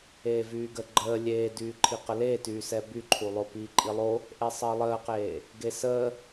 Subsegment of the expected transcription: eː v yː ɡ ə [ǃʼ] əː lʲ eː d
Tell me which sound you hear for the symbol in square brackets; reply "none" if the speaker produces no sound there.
ɡ͡ǃ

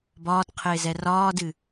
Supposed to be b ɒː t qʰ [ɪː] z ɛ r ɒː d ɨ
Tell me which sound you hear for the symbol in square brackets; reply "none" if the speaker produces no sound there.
ɪː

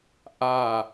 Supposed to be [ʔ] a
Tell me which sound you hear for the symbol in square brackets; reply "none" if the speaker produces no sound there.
ʔ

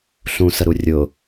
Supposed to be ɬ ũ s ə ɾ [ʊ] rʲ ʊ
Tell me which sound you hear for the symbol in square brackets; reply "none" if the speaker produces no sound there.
u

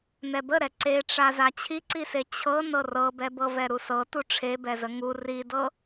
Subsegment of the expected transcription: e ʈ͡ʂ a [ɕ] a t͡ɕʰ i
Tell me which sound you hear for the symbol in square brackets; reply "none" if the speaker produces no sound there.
z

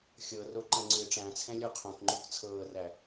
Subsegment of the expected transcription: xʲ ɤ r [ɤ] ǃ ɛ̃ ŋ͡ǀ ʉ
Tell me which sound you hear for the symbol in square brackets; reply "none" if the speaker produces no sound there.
o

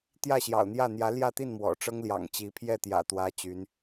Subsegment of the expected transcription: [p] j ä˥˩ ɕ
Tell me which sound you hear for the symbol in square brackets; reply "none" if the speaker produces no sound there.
t̪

